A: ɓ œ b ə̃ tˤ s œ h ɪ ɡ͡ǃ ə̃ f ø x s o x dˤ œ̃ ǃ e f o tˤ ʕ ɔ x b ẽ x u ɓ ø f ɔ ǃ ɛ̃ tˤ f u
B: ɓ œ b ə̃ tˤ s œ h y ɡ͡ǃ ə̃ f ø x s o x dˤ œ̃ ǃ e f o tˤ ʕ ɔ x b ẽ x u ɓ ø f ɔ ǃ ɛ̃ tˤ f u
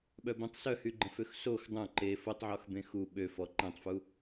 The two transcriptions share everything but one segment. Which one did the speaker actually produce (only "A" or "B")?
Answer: B